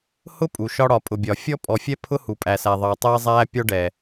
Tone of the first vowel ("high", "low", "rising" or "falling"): high